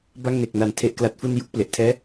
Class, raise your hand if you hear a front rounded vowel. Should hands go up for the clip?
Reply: no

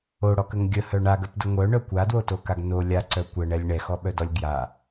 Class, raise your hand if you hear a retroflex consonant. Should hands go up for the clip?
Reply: yes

